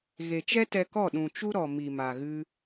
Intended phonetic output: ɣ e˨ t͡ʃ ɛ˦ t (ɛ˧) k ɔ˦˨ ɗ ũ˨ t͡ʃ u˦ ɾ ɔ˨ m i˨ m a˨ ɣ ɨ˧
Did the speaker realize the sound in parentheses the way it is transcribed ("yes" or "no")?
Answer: yes